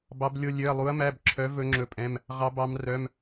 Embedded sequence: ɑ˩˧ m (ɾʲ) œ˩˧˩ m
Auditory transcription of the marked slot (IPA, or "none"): r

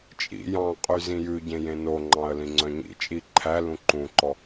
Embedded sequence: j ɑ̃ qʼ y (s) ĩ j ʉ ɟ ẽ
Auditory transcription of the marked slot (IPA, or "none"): z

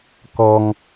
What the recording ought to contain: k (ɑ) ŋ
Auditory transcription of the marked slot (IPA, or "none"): ɔ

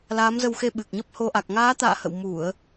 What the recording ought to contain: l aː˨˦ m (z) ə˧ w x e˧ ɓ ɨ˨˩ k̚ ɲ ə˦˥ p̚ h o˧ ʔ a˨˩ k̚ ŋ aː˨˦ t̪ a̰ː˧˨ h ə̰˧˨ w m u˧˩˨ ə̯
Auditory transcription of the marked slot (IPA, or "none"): z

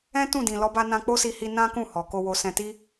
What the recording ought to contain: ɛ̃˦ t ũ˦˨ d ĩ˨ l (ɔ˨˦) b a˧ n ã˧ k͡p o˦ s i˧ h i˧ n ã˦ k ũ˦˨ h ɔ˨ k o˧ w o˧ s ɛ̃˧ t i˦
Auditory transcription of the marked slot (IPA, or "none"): ɔ˨˦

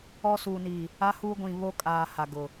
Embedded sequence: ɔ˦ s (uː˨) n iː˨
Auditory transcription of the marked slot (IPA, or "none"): uː˨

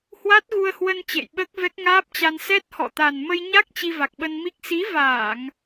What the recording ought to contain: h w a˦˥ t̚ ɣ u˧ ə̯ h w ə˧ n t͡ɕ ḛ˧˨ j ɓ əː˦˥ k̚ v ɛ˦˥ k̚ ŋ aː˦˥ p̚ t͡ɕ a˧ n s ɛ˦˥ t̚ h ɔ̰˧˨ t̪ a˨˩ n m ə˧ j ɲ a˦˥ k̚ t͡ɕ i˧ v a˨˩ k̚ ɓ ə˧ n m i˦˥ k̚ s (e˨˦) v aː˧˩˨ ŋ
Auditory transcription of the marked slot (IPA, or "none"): i˨˦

